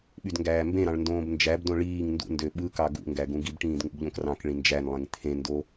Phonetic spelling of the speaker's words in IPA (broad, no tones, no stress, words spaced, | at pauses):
ɓydŋɡæːmbẽɾɑ̃ɭ ndõːbnd͡ʒæbdõ ɭiːŋ ndṵndø ɓɯkɑ ɡṵŋɡæ ɡũɡibʈĩːd ŋṵbʎõkrɑ̃kɭĩ nd͡ʒænlˠẽŋ t̪ʰẽndo